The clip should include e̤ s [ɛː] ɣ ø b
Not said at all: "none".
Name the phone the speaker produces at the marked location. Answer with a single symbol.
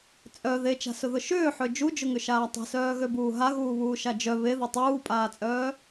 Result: œː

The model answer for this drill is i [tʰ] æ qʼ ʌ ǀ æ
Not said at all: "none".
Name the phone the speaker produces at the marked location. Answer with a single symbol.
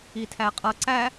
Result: tʰ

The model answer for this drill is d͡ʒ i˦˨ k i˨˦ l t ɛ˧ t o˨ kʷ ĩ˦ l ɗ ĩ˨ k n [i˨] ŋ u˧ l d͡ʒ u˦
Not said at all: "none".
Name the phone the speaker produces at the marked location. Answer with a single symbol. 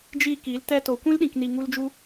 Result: i˨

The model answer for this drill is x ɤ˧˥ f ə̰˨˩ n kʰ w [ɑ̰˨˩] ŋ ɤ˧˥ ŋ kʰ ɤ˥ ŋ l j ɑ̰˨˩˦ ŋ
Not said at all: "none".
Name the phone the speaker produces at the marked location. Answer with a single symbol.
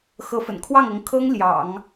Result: ɑ˥˩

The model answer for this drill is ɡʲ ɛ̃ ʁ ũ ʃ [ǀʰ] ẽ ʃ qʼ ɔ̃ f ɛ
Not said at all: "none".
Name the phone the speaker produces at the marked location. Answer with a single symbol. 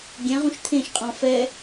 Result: t̪ʰ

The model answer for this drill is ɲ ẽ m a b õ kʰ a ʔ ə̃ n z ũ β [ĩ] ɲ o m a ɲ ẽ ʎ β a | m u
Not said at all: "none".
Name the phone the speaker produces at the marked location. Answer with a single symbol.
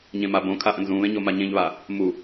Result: ẽ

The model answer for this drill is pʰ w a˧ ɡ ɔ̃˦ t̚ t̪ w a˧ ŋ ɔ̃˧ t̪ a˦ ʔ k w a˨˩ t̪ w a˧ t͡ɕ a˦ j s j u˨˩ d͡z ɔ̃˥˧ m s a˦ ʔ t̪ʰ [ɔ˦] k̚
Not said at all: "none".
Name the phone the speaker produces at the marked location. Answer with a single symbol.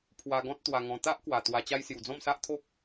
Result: o˦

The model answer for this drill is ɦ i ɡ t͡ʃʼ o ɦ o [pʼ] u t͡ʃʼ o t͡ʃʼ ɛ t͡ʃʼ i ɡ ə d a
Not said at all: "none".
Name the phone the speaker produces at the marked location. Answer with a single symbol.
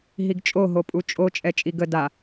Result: pʼ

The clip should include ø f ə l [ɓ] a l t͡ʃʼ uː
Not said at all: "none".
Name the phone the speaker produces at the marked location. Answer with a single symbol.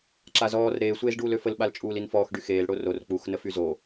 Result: ɓ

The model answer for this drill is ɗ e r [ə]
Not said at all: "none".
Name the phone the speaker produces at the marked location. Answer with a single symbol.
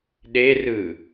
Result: ɯ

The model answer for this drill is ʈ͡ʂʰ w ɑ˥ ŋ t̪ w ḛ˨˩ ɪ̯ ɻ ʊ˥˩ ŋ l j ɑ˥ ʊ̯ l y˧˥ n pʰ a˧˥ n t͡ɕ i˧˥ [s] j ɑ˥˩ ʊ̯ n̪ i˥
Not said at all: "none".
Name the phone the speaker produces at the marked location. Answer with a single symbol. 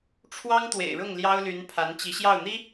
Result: ɕ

